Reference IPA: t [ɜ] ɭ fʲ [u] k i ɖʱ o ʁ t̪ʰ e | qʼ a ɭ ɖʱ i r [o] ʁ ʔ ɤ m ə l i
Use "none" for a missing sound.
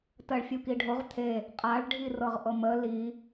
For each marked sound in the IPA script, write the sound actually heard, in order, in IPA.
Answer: ɜ, u, ɤ

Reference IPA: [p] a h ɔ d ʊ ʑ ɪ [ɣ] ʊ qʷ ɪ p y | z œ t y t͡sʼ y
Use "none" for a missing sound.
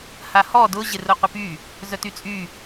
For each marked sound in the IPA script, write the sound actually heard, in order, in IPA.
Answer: h, r

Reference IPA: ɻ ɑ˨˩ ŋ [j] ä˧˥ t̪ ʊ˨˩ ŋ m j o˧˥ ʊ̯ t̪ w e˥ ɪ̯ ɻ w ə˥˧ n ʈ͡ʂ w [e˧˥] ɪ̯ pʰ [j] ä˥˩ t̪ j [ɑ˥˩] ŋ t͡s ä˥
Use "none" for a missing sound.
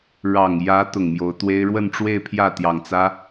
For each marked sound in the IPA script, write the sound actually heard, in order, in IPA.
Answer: j, e˥˧, j, ɑ˨˩

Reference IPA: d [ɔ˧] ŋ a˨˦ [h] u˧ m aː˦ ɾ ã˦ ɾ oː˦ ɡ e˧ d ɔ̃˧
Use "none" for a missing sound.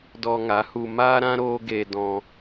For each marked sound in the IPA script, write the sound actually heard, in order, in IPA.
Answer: ɔ˧, h

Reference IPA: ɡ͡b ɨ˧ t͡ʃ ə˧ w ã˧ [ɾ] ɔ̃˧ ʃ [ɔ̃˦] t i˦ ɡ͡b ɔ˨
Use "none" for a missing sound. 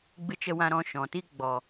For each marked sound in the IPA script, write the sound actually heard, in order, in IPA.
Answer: ɾ, ɔ̃˨

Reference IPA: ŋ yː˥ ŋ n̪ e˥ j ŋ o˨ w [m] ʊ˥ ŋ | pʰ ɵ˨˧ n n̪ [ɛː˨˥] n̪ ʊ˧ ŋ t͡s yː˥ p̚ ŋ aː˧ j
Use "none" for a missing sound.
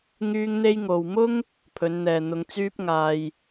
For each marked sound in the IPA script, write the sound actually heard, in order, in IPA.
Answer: m, ɛː˨

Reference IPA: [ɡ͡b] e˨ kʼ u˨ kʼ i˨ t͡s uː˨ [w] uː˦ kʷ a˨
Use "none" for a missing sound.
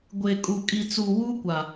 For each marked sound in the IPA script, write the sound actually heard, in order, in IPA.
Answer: ɡʷ, w

